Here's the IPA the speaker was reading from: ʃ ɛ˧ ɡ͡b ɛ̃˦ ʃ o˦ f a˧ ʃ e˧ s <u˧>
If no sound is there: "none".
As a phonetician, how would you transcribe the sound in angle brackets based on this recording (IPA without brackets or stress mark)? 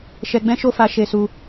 u˧